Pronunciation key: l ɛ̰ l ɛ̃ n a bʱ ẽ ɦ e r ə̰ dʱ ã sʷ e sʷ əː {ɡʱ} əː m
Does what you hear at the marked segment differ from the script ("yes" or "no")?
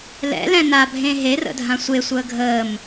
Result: no